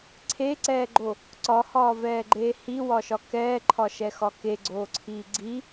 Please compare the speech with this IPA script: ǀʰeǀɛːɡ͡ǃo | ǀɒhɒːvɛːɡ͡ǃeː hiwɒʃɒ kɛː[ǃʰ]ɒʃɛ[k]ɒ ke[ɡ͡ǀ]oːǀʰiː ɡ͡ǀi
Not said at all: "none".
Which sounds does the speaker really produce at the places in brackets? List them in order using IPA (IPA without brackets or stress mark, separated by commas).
ǃʰ, x, ɡ͡ǀ